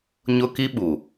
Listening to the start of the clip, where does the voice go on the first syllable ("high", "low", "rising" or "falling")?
high